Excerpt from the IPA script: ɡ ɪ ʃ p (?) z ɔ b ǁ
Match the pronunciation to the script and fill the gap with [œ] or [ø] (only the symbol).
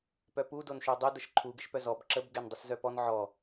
œ